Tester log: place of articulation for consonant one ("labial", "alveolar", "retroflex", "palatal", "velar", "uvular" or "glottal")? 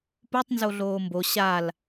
labial